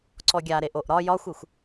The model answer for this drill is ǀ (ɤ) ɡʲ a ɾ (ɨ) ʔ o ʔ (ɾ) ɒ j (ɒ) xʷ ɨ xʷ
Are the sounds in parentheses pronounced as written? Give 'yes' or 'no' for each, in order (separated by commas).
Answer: no, no, yes, yes